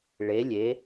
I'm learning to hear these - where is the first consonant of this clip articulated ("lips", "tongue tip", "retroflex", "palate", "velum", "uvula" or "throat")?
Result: retroflex